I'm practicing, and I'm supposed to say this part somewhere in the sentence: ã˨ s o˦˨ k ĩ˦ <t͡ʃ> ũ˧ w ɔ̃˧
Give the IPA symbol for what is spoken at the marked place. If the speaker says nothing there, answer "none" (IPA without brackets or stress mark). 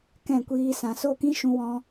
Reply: ʃ